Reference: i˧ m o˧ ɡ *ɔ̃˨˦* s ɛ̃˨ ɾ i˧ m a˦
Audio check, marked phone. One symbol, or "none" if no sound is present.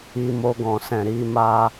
ɔ̃˨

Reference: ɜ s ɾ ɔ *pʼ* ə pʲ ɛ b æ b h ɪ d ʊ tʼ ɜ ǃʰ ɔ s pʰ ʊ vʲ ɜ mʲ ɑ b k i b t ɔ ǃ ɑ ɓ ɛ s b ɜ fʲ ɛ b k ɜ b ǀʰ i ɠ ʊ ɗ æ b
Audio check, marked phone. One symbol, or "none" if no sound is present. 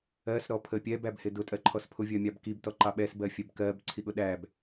pʰ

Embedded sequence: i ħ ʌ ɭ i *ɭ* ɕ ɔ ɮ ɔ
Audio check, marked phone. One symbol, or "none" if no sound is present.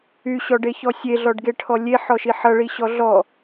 none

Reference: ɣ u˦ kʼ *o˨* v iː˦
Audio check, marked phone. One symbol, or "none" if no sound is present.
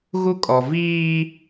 ɔ˨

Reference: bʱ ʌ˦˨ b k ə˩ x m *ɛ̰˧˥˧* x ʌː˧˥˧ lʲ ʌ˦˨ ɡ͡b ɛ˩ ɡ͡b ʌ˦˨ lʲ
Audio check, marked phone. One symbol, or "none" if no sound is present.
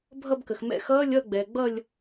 ɛ̰˧˥˧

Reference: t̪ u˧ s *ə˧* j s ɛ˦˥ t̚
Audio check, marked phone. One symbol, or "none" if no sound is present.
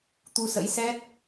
ə̰˧˥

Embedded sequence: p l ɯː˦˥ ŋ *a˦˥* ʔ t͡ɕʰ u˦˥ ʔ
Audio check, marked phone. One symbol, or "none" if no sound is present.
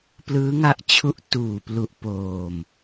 a˦˥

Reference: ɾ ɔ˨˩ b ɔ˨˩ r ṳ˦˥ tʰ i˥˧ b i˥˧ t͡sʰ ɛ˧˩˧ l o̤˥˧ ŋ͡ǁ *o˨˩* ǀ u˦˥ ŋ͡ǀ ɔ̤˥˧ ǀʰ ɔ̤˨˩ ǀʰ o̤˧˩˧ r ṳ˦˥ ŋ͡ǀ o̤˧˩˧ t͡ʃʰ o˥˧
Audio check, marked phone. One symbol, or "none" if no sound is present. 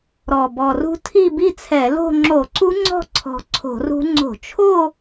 o˧˩˧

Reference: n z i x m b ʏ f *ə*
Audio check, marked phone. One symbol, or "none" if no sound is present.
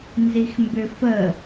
ə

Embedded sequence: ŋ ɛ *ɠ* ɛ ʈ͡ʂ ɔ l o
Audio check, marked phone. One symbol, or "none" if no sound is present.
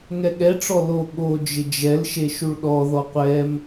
ɠ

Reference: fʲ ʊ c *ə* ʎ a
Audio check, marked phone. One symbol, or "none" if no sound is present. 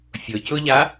ʊ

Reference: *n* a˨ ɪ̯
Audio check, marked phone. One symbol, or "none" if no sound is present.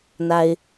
n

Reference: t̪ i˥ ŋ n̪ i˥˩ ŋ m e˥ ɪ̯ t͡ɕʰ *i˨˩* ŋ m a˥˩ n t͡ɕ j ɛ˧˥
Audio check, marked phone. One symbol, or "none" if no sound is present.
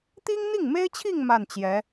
i˥˧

